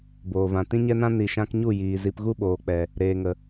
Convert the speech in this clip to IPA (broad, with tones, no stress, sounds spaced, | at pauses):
b oː˨ v ã˨ t ĩ˧ ɲ ɛ˧ n ã˧ n i˨ ʃ ã˧ k ɲ u˦˨ j iː˨ z i˧ p ɣ u˦ ɓ oː˨ k͡p ɛ˨ | ɾ eː˨ ŋ ə˨